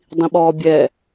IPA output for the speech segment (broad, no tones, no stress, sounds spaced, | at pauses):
dˤ ĩ ɓ ɔː bʲ ɛ